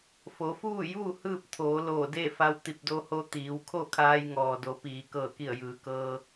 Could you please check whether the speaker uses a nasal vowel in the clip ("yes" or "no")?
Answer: no